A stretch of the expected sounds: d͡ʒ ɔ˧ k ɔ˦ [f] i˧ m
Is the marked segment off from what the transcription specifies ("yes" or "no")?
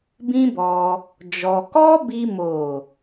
yes